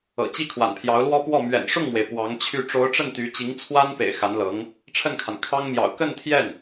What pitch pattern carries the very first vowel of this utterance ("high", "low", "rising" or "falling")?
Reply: low